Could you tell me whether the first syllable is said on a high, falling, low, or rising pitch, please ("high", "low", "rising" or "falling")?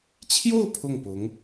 falling